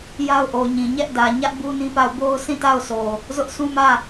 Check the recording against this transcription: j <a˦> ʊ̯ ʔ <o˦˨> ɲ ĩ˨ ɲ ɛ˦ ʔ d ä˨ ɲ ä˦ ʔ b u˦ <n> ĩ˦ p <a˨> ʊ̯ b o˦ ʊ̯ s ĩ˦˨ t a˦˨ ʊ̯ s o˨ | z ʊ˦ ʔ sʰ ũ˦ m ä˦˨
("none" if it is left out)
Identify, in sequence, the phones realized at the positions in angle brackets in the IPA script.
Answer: a˦, o˨, n, a˦˨

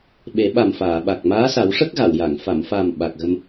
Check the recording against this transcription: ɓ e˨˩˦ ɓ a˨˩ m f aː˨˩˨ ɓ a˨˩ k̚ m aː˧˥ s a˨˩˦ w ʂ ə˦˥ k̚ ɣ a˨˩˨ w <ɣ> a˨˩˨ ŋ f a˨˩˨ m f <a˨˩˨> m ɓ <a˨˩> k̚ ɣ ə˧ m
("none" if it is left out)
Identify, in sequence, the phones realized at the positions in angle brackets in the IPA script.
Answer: j, a˨˩, a˨˩

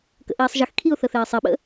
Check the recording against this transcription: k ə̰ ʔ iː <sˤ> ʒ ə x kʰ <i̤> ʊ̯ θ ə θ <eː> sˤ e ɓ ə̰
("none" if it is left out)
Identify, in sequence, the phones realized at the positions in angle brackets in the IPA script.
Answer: sˤ, i, eː

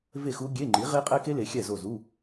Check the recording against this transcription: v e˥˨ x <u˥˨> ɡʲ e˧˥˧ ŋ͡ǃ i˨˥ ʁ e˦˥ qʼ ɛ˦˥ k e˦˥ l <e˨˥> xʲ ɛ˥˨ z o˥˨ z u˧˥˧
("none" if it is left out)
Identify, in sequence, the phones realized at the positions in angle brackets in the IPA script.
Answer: u˦˥, e˨˥

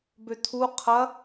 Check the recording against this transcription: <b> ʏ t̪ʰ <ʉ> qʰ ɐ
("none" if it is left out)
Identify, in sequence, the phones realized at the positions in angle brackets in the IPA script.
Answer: b, u

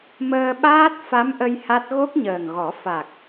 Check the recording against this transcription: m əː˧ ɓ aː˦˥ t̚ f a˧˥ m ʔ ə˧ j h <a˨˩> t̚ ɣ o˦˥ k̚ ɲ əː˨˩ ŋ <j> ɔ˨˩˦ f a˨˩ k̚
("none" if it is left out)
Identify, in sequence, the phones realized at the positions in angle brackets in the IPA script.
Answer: a˦˥, ɣ

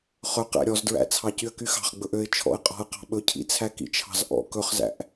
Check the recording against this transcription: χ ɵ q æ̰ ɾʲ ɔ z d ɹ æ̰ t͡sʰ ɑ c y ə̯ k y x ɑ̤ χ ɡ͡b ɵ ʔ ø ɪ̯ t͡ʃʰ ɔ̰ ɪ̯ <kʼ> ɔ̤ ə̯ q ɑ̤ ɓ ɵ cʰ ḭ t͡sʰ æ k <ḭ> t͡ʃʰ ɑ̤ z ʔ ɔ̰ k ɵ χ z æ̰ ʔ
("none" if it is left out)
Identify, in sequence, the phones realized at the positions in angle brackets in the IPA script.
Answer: qʼ, ḭ

